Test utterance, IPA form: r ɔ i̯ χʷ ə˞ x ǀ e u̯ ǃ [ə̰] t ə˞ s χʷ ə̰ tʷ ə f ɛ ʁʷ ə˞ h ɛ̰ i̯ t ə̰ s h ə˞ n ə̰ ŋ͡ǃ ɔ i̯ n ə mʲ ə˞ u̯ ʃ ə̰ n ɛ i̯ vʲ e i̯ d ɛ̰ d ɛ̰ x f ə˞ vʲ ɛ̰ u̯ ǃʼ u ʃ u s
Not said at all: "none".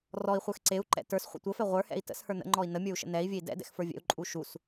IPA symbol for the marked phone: ɛ̰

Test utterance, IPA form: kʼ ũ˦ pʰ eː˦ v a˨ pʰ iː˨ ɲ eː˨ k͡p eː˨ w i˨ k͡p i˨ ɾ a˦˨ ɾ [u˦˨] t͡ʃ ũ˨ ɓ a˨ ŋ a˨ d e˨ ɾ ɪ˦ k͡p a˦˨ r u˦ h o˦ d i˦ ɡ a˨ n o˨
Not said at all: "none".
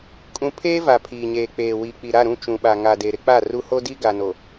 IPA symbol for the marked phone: ũ˦˨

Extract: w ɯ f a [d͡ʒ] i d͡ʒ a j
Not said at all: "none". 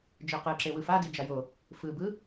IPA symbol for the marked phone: d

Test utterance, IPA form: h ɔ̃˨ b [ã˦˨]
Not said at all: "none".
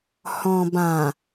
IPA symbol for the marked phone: ã˨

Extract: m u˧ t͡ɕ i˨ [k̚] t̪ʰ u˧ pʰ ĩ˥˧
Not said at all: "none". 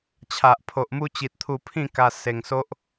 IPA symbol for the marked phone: t̚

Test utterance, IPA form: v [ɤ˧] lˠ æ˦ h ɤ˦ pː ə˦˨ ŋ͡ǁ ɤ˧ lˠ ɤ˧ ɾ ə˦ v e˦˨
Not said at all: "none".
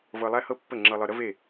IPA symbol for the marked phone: ɤ˧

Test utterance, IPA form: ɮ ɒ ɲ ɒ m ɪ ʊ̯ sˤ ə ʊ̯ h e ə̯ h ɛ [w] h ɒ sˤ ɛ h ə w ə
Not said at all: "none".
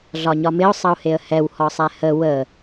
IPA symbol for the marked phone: w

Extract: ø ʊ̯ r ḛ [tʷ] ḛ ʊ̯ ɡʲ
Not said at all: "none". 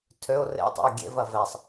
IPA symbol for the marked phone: tˤ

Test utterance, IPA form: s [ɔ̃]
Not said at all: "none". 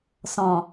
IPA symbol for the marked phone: ɔ̃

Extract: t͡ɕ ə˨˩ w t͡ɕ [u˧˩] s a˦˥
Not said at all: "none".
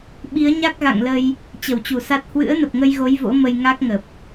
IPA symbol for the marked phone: u˧˩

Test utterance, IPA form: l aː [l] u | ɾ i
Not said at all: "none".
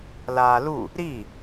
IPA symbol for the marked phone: l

